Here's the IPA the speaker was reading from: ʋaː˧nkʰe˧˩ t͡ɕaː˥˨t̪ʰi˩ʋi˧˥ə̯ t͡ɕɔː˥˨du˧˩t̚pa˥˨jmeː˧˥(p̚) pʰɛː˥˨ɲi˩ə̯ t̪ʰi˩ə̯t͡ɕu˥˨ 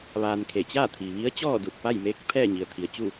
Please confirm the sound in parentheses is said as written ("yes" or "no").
no